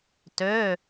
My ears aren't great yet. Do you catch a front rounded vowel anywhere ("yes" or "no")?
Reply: yes